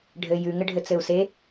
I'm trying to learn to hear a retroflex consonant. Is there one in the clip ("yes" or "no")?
yes